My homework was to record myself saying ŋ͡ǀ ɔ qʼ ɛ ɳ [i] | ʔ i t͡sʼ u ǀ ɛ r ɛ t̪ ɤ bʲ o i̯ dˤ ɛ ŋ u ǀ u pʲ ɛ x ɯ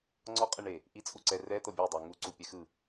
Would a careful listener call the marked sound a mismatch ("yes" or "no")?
yes